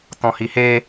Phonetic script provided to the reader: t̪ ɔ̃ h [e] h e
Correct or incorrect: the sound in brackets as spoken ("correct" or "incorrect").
incorrect